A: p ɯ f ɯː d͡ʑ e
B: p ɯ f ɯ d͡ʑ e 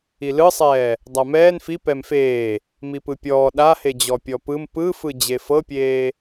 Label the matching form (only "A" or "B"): B